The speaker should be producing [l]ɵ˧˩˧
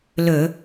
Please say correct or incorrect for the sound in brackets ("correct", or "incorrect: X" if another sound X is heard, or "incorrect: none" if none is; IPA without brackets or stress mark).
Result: correct